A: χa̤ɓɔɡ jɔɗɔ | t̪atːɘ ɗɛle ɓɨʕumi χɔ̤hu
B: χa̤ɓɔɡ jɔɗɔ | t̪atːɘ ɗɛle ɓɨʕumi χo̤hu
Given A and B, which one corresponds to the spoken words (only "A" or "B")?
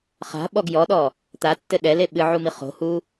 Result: B